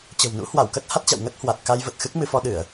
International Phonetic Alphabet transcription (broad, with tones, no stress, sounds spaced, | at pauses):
t͡ɕ ə̤˨˩ w n ṵ˧˥ h w a˧˩ w k ə˦˥ t̚ h a˦˥ t̚ t͡ɕ a̰˧˨ w ŋ ə˦˥ t̚ h w a˨˩ t̚ k a˧ j v ə˨˩ t̚ x ɨ˦˥ k̚ m ɨ˧ f ɔ˧ ɗ ɨ˧˩˨ ə̯